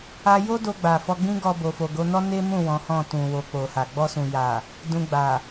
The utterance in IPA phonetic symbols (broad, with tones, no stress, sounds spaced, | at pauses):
a˦ j o˦ d o˧ ɡ͡b a˨ f ɔ˧ ɡ͡b ĩ˦ ɡ ɔ˧ b o˨ f o˨ ɡ o˨˦ n ɔ˦ n e˦ m ũ˦˨ w ɔ̃˨˦ h ɔ̃˦˨ t ũ˨ w o˨ k͡p o˨ h a˨ ɡ͡b ɔ˧ s ũ˨ j a˨ | d ũ˧ ɡ͡b a˨